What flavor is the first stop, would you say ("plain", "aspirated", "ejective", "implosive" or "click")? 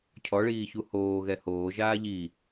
aspirated